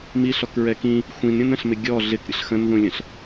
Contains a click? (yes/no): no